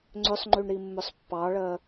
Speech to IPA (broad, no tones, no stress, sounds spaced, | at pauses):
ŋ͡ǀ ʏ sˤ ŋ͡ǃ y ɳ ɾ i mː ʏ sˤ pː ɑ ɭ ɜ